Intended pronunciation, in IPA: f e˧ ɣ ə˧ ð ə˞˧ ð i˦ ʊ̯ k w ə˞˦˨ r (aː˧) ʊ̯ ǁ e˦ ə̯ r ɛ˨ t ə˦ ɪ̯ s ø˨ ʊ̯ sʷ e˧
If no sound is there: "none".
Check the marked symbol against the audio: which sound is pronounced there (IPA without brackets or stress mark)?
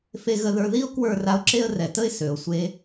a˧